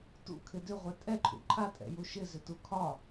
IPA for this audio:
t ṵ kʰ ɪ d ʏ ʁʷ ɛ tʼ ɛ ǃʰ ṵ ǃʰ a tʼ ɛ̰ j u ʃ ɪ z ʏ t u kʰ ɒ

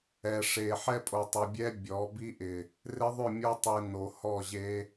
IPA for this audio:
ɛ˨ ʂ e˨ ħ ɛ˦ pʼ o˨ tˤ ɪ˨ bʲ ɛ˦ bʲ ɔ˨˦ b i˦ ʔ ɪ˨ | r ɪ˦ ðˤ ʏ˦˨ mʲ o˦ tˤ i˨ n o˨ h ɔ˦˨ ʑ e˦

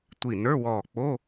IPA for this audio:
tʷ i˧˩ n ə˞˧˥˧ w ɔː˧˩ k͡p o˧˥˧

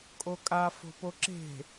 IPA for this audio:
kʼ o kʼ a f o̤ p o ǁ e̤

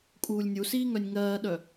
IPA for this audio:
kʼ uː lʲ nʲ u s iː ŋ œ nʲ ŋ ɜː ɗ œ

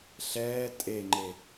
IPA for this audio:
ɬ ɛː tʼ e ŋ͡ǃ e

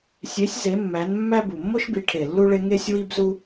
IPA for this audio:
sʲ e˨˥ sʲ z e˨˥ mː æ˨˥ n mː æ˥ b u˨˩ mː o˥ ʃ b i˨˥ ʈʰ e˨˩ lː u˥ ɭ e˥ ŋ e˥ sʲ w i˥ b z u˥

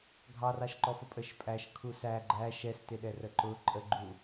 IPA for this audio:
ɡʱ ɑ r ɑ ʃ ǃ ɔ f ə pʼ ə ʃ pʼ æ ʃ kʰ u s æ ɡ͡ǃ æ ʃ ɛ s t ɪ ɗ ɛ r ə ǃ ʊ ǃʼ ə ɡ͡ǃ u

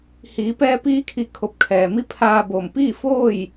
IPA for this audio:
h iː˩˧ p ɛː˧ p iː˧˥ kʰ i˧˩ kʰ o˧˩ p̚ kʰ ɛː˩ m i˧˥ pʰ aː˧ b oː˧˩ m p iː˥˨ f oː˥˨ j

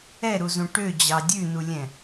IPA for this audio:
ɛ ɾ u z ũ ʈ ø d͡ʑ ɑ dʲ ʉ n u lʲ ɛ̃

